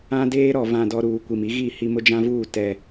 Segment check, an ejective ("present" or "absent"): absent